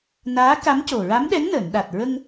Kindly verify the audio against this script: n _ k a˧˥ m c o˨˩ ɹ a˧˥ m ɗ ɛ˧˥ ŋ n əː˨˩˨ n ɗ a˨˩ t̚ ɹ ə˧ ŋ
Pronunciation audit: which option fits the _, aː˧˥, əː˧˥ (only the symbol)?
aː˧˥